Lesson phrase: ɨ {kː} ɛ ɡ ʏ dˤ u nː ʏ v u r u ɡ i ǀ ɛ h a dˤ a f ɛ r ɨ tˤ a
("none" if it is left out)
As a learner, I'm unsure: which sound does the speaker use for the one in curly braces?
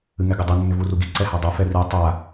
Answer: ŋ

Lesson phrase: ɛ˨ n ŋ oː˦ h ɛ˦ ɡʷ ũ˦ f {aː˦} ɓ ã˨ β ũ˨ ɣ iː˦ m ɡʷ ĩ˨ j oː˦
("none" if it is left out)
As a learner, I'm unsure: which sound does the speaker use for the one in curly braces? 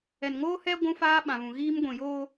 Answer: aː˦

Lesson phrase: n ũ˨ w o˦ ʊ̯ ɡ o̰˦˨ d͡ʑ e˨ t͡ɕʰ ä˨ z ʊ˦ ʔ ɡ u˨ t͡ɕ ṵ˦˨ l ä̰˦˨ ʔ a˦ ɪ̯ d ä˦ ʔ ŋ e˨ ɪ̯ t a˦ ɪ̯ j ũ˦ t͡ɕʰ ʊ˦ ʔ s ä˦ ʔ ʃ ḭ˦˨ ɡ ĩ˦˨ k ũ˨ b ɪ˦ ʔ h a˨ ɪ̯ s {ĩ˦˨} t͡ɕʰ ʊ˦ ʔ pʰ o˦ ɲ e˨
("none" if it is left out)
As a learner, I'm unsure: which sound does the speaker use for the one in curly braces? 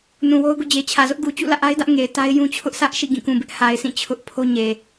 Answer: ĩ˦˨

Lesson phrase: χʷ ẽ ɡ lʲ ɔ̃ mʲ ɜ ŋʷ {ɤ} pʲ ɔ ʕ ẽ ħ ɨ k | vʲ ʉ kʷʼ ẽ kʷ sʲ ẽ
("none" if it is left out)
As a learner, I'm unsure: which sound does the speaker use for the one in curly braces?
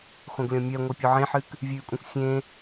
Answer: ɤ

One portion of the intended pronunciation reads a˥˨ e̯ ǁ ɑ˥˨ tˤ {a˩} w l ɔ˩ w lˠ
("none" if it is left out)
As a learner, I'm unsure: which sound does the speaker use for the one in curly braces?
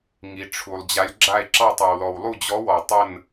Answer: a˩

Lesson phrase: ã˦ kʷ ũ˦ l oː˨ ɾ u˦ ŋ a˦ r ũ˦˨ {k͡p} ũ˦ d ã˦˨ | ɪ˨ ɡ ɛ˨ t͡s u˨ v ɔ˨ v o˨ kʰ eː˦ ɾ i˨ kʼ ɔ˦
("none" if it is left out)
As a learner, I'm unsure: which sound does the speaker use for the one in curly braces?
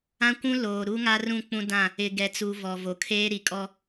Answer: k͡p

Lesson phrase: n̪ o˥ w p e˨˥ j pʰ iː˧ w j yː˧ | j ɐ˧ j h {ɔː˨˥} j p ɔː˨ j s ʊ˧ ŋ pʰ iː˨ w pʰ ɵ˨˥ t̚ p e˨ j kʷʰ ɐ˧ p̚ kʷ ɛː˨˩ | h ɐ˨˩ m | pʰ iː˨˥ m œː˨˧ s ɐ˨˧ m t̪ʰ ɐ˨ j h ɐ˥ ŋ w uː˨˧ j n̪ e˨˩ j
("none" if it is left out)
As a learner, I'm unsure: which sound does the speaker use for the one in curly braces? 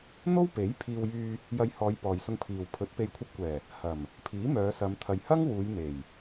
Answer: ɔː˨˧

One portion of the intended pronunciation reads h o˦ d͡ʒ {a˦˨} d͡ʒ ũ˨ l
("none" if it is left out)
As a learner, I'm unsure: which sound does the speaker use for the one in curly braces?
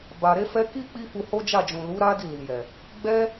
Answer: a˦˨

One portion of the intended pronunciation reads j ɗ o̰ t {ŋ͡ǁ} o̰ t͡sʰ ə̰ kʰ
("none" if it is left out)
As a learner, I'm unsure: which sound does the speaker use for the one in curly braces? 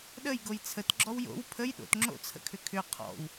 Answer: ŋ͡ǁ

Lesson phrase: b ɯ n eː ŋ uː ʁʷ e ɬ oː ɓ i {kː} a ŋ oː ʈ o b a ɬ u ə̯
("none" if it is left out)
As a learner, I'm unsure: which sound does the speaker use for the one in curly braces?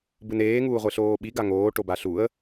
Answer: ɡ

